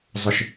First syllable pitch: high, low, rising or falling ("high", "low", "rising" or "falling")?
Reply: low